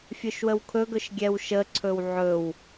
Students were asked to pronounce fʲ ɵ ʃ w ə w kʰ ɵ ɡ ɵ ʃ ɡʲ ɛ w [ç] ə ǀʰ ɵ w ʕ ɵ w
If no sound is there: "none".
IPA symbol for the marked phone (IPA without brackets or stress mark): ʃ